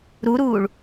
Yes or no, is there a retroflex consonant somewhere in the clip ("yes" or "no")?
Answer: yes